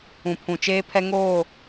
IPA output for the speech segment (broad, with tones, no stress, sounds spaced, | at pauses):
ũ˨ pʰ ũ˨ t͡ʃ eː˦ pʰ ɛ˦ ŋ oː˦˨